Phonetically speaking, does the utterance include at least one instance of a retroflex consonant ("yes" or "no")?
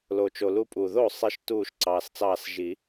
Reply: no